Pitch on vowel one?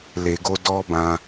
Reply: low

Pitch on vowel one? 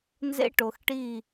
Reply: high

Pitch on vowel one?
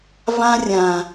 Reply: high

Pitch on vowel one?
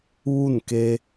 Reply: falling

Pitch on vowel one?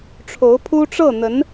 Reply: rising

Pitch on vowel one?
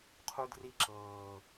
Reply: high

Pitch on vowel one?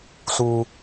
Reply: low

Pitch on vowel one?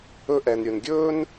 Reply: high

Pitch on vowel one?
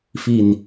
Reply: low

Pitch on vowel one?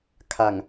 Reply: low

